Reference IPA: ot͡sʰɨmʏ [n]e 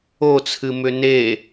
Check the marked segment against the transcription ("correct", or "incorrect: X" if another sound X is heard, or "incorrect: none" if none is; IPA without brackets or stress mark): correct